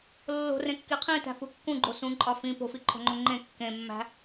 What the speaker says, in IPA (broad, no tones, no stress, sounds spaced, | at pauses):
lː o̤ r ẽ kː i qʰ ĩ t æ̤ f u kː ũ ɡ͡ǃ o s ũ ǃʼ ɒ f ĩ p o̤ f i ǃʰ o̤ ŋ͡ǃ o ŋ͡ǃ ẽ kː ẽ mː æ̤